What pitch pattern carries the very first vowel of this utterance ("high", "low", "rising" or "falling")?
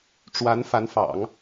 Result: rising